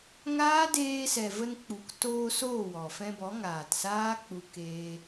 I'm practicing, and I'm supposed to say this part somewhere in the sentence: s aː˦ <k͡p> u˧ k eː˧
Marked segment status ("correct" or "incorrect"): correct